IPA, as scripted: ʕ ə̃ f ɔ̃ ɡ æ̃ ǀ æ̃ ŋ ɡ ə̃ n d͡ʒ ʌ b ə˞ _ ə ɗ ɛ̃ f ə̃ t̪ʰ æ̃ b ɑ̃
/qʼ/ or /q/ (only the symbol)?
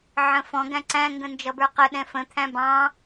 q